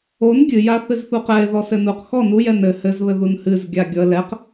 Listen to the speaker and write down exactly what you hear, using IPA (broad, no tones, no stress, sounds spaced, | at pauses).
o n ɡʲ ɨ j a θ ɨ z θ u q ɛ ɪ̯ ð ɔ s ɘ n u q x ɔ n u j ɛ n ɘ h ɘ z β ɘ ð u n h ɨ z ɡʲ a ɡʲ ɔ ə̯ l ɛ q